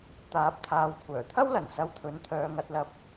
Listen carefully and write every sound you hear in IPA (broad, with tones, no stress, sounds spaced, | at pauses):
t̪ aː˨˥ p̚ t̪ʰ aː˨˧ w kʷʰ œː˨˩ t̪ʰ ɐ˥ w l ɐ˨˩ n s ɐ˧ w t̪ʰ ɵ˨˥ n t̪ʰ œː˨˧ ŋ ɐ˧ t̚ l ɐ˧ p̚